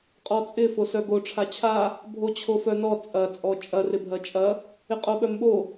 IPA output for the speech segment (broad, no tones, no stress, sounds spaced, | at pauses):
qʼ ɔ t͡sʼ ɪ f o s œ ɡ o ʈ͡ʂʰ a t͡ɕʰ a | bʱ o t͡ɕʰ o f œ n ɔ t͡sʼ ɐ t͡sʼ ɔ t͡ʃʼ ɐ r ɪ bʱ ɐ t͡ʃʼ ɐ | ɪ qʼ o ɓ œ m ɓ o